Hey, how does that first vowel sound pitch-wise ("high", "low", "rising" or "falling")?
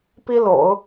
high